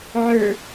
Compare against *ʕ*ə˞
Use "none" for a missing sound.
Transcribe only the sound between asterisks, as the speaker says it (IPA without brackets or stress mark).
ʕ